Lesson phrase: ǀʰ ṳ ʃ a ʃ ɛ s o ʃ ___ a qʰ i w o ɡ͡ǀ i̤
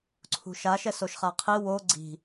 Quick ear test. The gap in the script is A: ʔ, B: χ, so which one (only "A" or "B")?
B